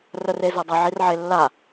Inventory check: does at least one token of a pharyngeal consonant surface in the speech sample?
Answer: yes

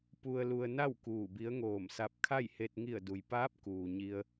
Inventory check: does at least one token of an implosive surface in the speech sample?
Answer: no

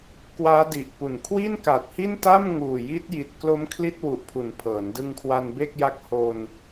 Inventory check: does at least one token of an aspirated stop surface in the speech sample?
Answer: yes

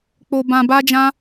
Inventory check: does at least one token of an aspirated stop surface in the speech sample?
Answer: no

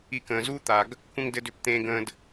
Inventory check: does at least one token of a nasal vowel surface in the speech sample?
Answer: yes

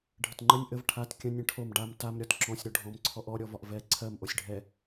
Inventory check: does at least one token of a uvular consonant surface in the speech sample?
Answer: no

